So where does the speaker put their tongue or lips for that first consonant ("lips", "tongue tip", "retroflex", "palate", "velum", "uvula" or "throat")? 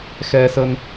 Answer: velum